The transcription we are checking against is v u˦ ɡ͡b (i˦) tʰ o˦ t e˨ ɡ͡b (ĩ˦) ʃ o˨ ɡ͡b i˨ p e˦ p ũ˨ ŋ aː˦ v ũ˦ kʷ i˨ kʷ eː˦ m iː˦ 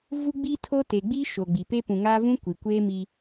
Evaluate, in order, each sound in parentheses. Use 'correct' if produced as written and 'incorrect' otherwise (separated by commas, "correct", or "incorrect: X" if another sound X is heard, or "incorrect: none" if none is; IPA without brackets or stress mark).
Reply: correct, incorrect: i˦